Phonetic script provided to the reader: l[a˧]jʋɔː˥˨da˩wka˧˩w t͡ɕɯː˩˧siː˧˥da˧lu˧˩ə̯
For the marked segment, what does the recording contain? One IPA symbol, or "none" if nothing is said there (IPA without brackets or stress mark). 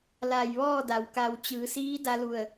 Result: a˧˩